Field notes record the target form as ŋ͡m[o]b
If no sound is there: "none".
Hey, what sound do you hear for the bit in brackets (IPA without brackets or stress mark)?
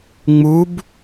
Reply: u